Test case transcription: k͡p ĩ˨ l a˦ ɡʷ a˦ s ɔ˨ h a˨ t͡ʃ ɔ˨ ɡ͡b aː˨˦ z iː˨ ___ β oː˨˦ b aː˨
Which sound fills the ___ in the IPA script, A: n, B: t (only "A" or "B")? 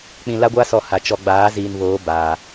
A